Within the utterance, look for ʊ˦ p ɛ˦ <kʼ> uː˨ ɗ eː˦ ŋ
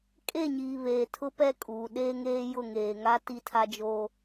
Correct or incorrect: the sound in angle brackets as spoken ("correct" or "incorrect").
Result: correct